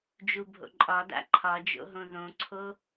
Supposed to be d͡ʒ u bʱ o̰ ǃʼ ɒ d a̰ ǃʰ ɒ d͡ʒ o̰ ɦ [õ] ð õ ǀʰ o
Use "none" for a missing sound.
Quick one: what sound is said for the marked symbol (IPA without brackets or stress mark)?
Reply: õ